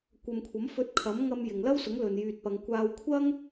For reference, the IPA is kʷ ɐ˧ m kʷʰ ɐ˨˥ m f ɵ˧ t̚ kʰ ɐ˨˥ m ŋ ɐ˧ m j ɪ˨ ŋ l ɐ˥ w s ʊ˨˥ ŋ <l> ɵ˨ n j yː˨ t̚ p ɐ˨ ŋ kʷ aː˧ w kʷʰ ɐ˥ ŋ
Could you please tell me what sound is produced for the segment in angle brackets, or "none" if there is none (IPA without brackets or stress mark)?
l